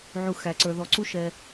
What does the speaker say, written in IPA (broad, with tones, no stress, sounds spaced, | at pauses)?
ʕ u˨ x æ˨ ǀ ə˞˨ ð ɔ˨˩˦ ǀ u˦ ʃ ɛ˨